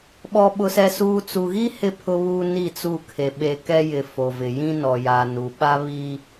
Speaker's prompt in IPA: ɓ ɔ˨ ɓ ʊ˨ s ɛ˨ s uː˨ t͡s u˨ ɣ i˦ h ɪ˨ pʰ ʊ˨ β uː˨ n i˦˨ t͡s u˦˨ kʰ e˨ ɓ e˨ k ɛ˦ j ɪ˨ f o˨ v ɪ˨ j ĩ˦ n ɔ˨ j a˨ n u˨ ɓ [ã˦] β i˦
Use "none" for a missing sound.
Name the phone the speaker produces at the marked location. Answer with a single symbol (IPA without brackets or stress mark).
a˦